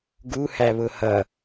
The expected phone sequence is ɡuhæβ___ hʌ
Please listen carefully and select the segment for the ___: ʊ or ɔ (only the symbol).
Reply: ʊ